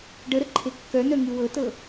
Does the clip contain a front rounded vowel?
yes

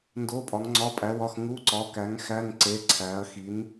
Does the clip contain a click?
yes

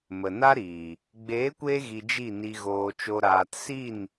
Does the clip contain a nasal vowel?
no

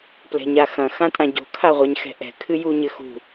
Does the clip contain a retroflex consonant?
no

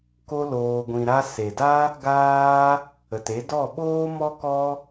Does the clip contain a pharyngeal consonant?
no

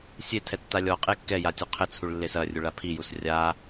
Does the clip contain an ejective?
yes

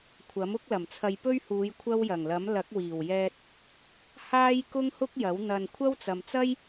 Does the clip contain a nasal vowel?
no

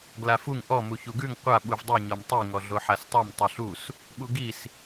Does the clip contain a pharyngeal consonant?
yes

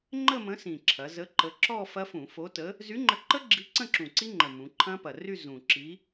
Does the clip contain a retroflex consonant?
no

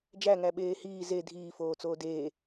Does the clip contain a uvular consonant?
no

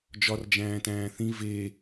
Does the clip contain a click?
no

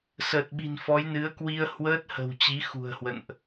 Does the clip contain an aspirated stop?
no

